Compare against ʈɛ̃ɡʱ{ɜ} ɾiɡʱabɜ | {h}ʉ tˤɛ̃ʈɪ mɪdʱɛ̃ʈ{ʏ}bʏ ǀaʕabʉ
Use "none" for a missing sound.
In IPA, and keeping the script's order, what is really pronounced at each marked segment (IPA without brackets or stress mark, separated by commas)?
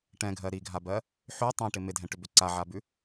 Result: ɜ, ħ, ʏ